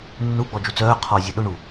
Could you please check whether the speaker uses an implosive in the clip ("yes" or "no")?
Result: yes